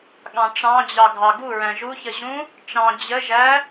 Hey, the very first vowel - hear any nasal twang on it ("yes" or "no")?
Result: yes